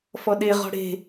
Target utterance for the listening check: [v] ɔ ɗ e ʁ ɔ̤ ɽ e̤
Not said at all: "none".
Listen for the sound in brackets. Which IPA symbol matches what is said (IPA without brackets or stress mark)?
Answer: f